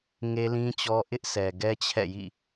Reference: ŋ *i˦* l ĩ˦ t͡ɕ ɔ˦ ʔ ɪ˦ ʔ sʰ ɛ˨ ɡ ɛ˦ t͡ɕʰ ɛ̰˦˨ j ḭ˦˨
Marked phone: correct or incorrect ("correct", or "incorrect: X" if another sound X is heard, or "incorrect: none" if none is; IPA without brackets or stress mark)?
incorrect: e˦